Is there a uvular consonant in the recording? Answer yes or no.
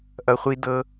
yes